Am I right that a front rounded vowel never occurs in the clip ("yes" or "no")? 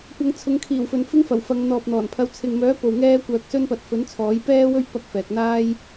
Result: no